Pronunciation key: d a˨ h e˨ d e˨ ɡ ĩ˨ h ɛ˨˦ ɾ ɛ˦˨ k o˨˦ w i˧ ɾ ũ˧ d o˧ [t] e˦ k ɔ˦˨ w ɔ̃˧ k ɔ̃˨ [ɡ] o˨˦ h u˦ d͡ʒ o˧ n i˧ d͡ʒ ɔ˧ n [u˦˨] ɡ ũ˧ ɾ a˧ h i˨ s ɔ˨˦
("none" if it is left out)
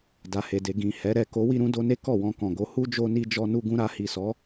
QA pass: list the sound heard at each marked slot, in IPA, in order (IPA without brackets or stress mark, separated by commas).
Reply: n, ɡ, u˧